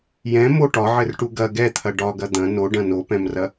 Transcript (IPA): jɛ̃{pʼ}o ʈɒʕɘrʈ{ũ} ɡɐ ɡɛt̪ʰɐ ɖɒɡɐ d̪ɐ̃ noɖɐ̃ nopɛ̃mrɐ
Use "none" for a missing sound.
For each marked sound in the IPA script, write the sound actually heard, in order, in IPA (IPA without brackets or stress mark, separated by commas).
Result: m, u